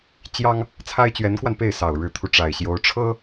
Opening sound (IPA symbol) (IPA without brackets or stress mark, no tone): t͡ɕ